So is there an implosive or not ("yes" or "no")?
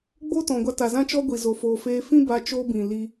no